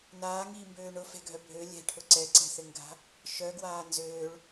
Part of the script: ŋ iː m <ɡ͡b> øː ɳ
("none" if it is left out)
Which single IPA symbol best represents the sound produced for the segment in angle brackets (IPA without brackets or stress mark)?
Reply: b